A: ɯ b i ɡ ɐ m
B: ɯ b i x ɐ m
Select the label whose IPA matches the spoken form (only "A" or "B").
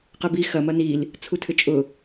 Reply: B